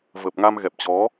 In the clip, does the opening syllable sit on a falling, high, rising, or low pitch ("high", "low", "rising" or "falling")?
low